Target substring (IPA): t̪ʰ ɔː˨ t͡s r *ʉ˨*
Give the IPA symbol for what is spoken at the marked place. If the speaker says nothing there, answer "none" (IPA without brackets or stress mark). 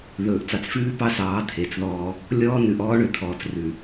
ʉ˨